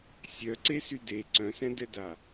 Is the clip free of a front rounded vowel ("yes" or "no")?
no